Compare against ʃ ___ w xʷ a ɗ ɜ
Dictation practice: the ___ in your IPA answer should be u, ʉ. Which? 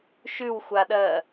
ʉ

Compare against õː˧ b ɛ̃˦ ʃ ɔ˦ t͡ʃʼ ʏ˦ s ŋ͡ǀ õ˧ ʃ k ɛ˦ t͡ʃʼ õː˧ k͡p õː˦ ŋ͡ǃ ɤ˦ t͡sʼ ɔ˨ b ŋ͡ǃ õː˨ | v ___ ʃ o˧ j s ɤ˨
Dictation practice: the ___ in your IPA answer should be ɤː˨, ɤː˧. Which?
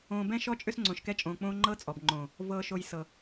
ɤː˧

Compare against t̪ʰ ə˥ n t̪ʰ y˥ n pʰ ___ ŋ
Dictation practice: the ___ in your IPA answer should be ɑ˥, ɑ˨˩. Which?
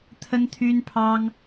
ɑ˥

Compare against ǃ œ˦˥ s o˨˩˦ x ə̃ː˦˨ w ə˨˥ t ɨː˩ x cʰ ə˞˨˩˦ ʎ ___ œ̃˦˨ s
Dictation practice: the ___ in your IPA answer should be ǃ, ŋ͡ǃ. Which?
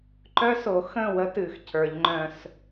ŋ͡ǃ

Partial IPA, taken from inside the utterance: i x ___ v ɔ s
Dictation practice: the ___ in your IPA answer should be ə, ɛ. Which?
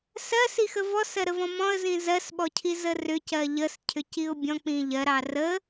ə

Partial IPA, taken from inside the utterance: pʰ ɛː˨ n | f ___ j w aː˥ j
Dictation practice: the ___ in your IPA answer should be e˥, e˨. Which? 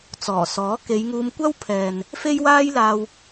e˥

